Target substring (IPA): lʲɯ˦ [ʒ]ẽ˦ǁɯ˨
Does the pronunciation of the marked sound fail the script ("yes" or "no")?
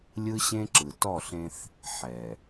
yes